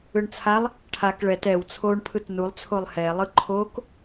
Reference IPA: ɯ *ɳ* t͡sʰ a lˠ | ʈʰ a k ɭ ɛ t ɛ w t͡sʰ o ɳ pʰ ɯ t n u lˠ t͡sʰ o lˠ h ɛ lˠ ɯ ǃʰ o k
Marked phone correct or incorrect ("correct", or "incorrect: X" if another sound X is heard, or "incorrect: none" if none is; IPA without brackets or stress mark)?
correct